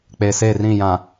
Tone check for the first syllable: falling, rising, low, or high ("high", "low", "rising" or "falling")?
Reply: low